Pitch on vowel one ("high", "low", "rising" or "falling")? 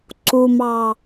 low